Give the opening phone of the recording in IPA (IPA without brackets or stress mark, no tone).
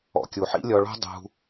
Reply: ɔ̰